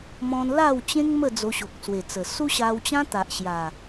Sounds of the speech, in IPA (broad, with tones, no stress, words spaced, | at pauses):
mɔ̃˧nla˥˧w t͡ɕẽ˦ŋ mə˥˧ d͡zo˧ɕo˨k̚swe˨˩t͡sə˨˩ su˦ɕa˧wt͡ɕã˦ t̪a˨ʔɕja˨˩